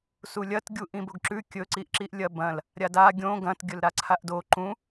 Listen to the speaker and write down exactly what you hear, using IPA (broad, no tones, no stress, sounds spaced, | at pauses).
s u lʲ ɐ t ɡʲ u ʔ ĩ b o ɡ ǁ ʉ kʲ ɵ ǀ i ʔ ǁ i ʔ lʲ ɐ b ɐ̃ l | ɾʲ a d a ɡʲ õ ɡ ɐ̃ t ɡʲ ɵ l ɾ a ǀʰ a ʔ d o ǃ ũ